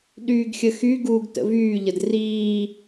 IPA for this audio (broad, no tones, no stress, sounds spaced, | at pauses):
ɗ yː ɡ xʲ ə x y ɡ uː ɡ t ə̰ v yː ʎ ə d r iː